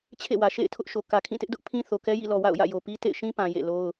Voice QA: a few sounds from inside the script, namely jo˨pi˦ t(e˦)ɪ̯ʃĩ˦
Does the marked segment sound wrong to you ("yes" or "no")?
yes